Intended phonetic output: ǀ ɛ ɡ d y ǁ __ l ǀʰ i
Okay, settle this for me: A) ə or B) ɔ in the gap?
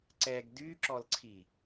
B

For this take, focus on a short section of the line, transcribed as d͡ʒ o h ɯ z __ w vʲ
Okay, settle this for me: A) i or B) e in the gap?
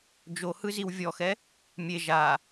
A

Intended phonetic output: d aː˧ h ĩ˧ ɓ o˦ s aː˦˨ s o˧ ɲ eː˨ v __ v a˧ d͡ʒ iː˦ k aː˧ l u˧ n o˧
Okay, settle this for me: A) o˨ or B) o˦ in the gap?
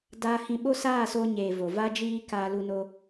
A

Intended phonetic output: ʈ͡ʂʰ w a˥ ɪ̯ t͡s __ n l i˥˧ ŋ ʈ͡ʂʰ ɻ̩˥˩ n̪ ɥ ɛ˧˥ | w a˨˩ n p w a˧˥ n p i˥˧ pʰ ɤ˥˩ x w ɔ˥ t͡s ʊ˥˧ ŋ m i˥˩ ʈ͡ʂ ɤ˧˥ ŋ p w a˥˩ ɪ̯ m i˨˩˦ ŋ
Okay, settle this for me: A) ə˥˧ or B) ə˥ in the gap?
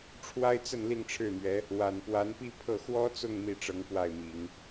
A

